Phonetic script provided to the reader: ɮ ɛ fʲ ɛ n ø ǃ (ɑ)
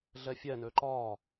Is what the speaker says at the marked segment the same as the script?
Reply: no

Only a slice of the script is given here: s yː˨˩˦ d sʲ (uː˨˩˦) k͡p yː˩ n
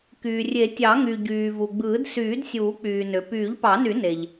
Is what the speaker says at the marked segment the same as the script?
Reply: yes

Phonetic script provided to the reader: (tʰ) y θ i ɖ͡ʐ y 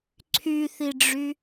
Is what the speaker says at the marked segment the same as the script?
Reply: no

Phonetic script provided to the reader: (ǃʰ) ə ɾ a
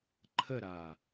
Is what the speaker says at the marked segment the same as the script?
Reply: yes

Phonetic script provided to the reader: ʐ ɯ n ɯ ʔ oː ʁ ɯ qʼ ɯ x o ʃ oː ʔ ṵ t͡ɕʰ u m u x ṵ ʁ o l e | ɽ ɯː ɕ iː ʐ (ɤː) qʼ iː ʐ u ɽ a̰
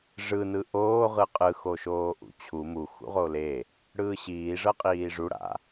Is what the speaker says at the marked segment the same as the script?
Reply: no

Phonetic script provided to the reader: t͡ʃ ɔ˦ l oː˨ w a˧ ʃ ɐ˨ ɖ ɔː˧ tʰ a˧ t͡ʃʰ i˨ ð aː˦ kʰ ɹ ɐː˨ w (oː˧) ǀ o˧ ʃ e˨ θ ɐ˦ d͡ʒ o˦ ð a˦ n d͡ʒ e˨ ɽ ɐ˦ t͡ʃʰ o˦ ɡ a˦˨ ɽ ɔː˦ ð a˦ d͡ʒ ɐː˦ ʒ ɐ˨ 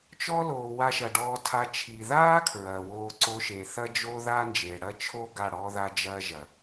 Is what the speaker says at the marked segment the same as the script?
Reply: yes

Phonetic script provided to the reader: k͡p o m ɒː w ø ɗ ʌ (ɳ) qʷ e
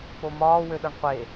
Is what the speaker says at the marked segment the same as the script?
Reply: yes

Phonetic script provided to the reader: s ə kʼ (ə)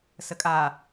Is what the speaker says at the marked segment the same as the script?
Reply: no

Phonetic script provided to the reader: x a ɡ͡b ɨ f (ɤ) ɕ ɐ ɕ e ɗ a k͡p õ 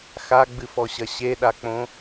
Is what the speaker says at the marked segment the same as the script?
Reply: no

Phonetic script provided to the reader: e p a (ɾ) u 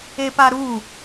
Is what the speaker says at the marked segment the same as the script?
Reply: yes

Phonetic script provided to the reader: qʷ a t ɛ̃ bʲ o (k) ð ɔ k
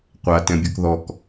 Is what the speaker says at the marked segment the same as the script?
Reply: yes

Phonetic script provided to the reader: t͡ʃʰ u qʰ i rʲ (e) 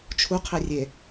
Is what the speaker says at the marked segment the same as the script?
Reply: yes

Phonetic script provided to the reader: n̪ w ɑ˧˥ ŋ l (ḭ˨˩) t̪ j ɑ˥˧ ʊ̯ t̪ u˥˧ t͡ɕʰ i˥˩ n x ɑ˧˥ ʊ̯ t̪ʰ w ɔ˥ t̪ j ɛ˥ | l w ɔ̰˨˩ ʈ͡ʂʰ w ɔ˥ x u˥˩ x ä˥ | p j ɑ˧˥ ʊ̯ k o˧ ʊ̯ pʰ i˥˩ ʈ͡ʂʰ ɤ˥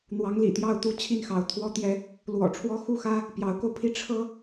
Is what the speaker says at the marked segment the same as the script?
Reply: yes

